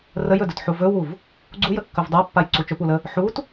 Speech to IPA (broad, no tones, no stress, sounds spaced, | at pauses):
r ə j ɵ d ɵ t ħ u v ɵ w u v | ɡ͡ǀ u j ə kː ɵ v dˤ a pː a j ǀ u t͡ʃ ɵ p u l ə | ħ u t